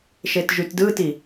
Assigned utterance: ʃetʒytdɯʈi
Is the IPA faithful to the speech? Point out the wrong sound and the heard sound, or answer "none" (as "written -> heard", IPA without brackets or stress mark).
ʈ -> t